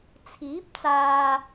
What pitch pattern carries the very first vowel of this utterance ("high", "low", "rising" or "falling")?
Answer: rising